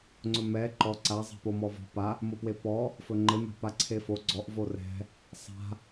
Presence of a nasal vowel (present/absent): absent